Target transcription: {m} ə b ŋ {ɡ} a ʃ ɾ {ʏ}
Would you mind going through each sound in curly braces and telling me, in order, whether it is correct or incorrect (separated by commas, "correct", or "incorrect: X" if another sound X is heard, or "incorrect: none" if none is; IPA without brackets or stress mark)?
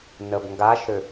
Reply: incorrect: n, correct, correct